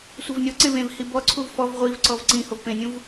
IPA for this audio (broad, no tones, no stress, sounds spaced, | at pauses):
sʷ e v nʲ ɔ ǀ ẽ v ẽ v h i b ɔ ǀʰ u v f ɔ v ʁʷ i v ǀ ɔ v ǀ ĩ h o v p ẽ nʲ ũ v